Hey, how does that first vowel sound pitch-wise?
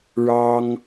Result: high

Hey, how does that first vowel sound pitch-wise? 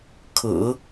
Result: low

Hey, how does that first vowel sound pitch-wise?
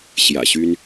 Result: low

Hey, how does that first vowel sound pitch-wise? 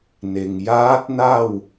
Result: low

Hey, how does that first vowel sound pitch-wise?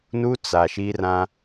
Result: high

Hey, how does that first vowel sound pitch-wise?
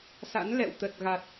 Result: rising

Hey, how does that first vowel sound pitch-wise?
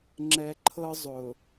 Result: low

